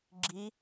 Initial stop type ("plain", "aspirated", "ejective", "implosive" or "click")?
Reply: click